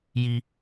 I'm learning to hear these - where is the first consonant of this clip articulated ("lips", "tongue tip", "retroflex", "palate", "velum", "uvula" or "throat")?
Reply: palate